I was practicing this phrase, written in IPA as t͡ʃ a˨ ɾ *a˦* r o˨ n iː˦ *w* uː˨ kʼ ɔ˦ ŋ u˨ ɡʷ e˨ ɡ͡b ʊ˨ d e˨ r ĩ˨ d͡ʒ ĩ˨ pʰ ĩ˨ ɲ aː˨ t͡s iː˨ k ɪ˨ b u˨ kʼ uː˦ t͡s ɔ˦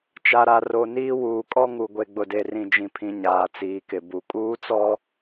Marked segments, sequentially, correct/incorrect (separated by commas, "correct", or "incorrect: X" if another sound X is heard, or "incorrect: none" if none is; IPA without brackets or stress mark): incorrect: a˨, correct